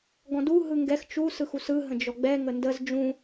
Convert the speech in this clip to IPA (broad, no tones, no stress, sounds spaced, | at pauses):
ɡ ɔ̃ d u ɦ ɯ ŋ ɡ ɛ x t͡ʃ u s ɯ x u s ɯ ɦ ə̃ d͡ʒ ɔ ɡ͡b ɛ ŋ ə n d ə z d͡ʒ ũ